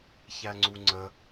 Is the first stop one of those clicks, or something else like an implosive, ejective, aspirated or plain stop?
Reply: click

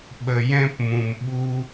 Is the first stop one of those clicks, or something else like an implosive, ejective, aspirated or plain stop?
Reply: implosive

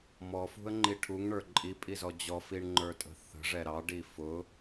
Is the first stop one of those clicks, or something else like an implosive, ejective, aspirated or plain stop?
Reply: click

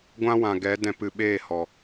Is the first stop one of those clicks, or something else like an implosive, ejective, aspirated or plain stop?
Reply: plain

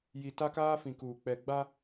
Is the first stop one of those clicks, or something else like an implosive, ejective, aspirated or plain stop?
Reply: plain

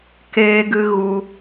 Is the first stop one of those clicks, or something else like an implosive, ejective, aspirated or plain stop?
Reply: plain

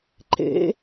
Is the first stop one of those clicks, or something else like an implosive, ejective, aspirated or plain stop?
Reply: click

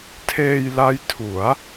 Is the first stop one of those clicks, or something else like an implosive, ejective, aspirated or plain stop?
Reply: aspirated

